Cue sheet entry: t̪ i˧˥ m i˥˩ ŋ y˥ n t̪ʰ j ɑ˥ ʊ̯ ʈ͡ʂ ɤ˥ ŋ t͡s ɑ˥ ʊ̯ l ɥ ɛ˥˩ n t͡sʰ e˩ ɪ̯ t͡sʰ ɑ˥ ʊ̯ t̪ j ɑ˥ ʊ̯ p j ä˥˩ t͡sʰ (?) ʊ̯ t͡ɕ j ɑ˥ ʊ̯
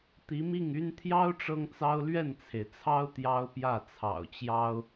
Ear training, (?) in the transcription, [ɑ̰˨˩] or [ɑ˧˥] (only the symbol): ɑ̰˨˩